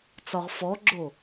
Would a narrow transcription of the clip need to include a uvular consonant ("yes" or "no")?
yes